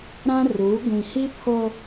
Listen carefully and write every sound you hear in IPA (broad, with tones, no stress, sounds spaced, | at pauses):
ɾ ã˦ r uː˨˦ ɡʷ ĩ˨ h i˦ pʰ o˦